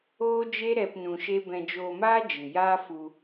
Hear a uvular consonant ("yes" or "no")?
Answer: no